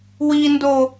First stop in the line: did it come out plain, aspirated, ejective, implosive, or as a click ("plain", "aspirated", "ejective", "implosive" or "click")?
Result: plain